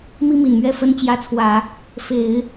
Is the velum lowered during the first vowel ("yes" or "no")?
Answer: no